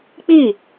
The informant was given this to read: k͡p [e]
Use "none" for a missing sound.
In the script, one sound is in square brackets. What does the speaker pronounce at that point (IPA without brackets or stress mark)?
i